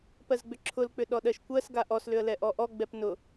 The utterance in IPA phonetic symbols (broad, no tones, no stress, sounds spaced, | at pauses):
p ɜ z ɡ͡b ʏ ǁʰ ʊ l k͡p ʏ ɗ ɔ ɗ ɜ ʃ kʷ ɜ s ɡ a ʔ ɔ s l ʏ ə̯ l ɛ ʔ ɔ ʔ ɔ ɡ͡b ɛ p n ʊ